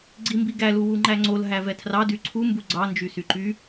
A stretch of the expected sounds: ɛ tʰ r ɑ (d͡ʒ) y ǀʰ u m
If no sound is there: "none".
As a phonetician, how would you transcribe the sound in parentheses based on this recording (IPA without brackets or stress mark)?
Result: d